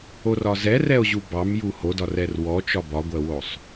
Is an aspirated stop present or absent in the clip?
absent